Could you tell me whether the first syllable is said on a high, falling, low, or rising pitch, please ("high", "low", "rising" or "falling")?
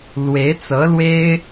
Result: rising